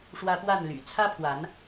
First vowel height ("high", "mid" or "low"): low